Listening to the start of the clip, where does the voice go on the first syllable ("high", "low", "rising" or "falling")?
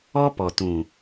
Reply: high